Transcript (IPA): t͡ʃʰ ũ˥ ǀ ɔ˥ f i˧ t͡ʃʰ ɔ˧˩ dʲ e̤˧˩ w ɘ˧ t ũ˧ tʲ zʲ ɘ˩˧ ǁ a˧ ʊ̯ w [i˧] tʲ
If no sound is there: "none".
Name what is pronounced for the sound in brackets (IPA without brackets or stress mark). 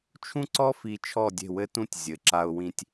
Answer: ĩ˧